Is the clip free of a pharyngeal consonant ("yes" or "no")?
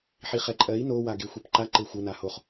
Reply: no